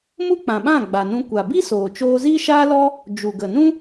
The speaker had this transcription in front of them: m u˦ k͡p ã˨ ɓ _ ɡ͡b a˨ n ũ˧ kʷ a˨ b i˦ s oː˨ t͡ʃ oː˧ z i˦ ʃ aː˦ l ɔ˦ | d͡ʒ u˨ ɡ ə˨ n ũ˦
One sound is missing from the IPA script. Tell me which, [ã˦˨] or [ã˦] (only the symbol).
ã˦˨